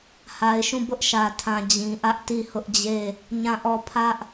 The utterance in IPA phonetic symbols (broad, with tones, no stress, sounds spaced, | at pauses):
h a˨ ɪ̯ ʃ ũ˦˨ b ʊ˦ ʔ ʃ ä˨ tʰ ã˨ d͡ʑ ĩ˨ ʔ ä˦ ʔ t i˦˨ h ʊ˦ ʔ d͡ʑ e˦˨ | ɲ ã˦˨ ʔ ɔ˦˨ pʰ ä˦ ʔ